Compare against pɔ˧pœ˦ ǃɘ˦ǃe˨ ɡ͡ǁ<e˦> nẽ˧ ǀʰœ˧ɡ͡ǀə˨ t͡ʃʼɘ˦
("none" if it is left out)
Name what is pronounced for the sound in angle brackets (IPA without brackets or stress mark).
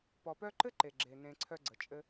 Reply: e˨